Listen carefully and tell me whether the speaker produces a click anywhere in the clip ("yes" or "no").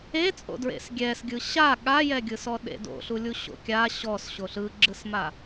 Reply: yes